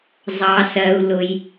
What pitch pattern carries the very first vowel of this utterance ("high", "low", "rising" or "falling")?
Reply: low